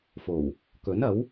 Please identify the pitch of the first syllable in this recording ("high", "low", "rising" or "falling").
low